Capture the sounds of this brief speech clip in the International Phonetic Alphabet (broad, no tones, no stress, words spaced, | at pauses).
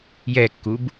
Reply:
jɛkːub